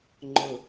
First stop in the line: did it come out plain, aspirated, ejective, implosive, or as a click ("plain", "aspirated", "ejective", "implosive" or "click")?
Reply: click